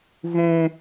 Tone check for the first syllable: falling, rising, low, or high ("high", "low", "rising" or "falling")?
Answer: high